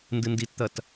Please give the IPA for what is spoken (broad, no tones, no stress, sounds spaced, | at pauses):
n d ɨ n d i t t̪ ɐ t